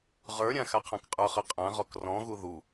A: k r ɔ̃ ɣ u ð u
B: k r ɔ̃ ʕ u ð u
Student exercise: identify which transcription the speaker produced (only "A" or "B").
A